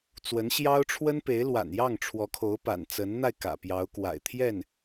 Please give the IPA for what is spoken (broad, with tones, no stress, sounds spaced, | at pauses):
t͡s w ə˧˥ n ɕ j ɑ˥ ʊ̯ ʈ͡ʂʰ w ə˥ n p e˧˥ ɪ̯ l w a̰˨˩ n j ɑ˥˩ ŋ ʈ͡ʂʰ w ɔ˧˥ kʰ o˧˥ ʊ̯ p a̰˨˩ n t͡s ə˧˥ n n̪ a˧ ɪ̯ k ä̰˨˩ p j ɑ˧˥ ʊ̯ k w a̰˨˩ ɪ̯ t̪ʰ j ɛ˥˩ n